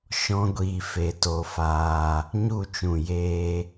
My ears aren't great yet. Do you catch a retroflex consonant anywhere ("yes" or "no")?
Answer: no